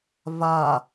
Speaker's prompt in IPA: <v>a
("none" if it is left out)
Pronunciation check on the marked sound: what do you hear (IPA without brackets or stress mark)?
v